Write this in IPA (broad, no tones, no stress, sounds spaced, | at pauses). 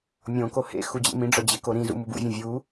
mʲ õ k o h ḛ x u d͡ʑ ḛ m ĩ ɖ͡ʐ ɒ d͡ʑ e k o ɾ ĩ z ṵ m u b ṵ vʲ õ vʲ u